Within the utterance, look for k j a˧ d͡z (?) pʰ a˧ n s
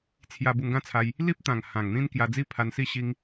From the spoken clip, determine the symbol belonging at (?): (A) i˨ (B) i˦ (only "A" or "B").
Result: B